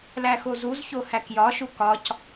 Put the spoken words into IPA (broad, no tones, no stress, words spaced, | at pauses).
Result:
læxozuzço hækjɒʃu kɒc